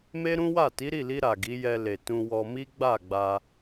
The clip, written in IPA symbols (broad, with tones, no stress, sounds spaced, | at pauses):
m e˦ ɾ ũ˦ w a˦˨ t i˨˦ ɾ i˦˨ l i˧ ɾ a˨ ɡ i˨˦ j ɛ˧ l e˨ t ũ˧ w ɔ˧ m i˦ ɡ͡b a˦˨ ɡ͡b a˧